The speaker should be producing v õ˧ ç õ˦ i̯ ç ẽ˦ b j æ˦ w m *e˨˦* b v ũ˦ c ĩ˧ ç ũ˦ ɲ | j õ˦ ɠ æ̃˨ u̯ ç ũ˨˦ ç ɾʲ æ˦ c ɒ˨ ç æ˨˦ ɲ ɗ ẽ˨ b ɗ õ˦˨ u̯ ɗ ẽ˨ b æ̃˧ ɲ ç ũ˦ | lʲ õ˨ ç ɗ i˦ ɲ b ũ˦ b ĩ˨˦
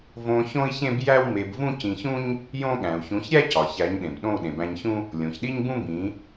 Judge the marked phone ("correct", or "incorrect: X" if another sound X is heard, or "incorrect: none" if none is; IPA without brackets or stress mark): incorrect: e˧